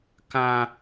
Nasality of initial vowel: nasal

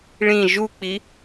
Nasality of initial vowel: nasal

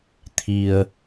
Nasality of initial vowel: oral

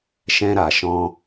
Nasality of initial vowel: nasal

